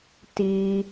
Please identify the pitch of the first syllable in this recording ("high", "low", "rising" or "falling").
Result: low